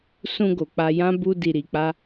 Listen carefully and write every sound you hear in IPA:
s ũ˧ ɡ o˨ k͡p a˧ j ã˦ b u˦ d i˧ ɾ i˧ k͡p a˦

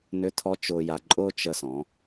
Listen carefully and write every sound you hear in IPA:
n ʏ˧˥ tʰ ɔ˧˥ t͡ʃ ʊː˧ j a˧ ǃʼ ʊː˥ t͡ʃ ə˧ s ɔ̃˩˧

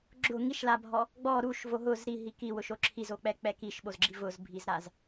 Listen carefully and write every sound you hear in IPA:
ɡ͡ǁ ʊ ŋ i ʃ l a bʱ ɔ | ɡ͡b ɔ ɾ u ʃ v o ɦ ʊ z ɾ i ɦ i k i w ʊ ʃ o ǁʰ i z o k͡p ɛ k͡p ɛ k i ʃ ɓ o z ɡ͡ǁ i v ʊ z bʱ i z ɾ a z

